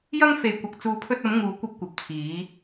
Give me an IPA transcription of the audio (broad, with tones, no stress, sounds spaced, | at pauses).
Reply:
j ɐ˥ ŋ f e˧ j kʷ ɐ˧ k̚ t͡s uː˧ pʰ ɵ˧ t̚ ɐ˨˧ m ŋ uː˨˧ kʷ ɐ˧ p̚ kʷ ɐ˨ p̚ t͡sʰ iː˨˧